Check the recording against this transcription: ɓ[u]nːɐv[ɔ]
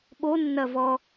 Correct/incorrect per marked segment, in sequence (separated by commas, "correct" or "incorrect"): incorrect, correct